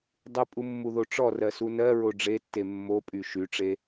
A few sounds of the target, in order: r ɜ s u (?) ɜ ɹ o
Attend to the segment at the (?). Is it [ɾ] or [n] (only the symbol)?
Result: n